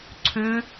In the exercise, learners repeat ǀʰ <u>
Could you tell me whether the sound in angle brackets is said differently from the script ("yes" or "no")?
yes